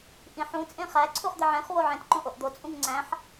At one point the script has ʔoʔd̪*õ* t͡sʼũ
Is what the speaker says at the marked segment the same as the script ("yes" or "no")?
no